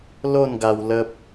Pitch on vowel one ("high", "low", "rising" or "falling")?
falling